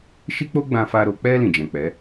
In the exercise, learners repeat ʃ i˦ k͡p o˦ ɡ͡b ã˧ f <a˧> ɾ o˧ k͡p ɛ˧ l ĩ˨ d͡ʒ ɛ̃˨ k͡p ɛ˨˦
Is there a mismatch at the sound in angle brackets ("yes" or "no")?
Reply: no